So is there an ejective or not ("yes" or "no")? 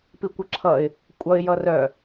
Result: yes